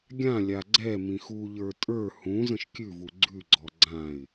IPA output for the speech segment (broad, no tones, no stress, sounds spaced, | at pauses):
ɡʲ ã lʲ a ɡ͡ǀ ɛ m ĩ x u ʎ ə˞ tʼ ə˞ h ũ z ə̃ ʃ kʲ ʉ v u ɡ͡ǀ ʉ ɡ͡ǀ ɔ ɡ͡ǀ ã ɪ̯